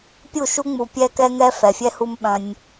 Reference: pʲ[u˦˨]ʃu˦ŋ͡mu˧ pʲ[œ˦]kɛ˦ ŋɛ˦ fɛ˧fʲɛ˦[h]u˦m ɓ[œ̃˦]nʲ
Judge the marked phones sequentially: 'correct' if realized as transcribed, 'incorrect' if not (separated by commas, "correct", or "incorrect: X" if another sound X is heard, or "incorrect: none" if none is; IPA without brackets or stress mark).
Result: correct, incorrect: ɛ˦, correct, correct